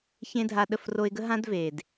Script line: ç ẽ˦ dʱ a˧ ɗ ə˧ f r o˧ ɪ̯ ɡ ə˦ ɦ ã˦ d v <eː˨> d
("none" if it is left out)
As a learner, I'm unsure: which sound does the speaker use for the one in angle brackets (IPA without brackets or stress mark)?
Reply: eː˨